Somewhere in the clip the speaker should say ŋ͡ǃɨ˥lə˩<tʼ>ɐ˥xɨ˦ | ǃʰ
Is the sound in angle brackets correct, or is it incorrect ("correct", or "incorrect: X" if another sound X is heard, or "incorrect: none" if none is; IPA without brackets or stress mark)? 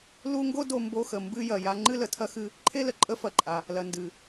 incorrect: tʰ